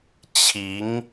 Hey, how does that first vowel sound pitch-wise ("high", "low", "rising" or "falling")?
rising